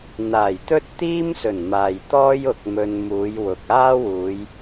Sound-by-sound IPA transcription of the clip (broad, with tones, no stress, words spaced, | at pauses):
n̪aː˨˩jt̪ɵ˥t̚t̪iː˥msɵ˨˩n maː˨jt̪ɔː˥j ʊ˨k̚mɵ˨n muː˨˧jwʊ˨k̚aː˥wuː˨˧j